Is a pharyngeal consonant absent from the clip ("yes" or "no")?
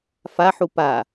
no